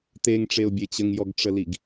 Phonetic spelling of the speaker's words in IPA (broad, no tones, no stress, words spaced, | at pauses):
teŋʈ͡ʂeʊ̯bʲe t͡ɕəŋjɔɡʈ͡ʂəliɡ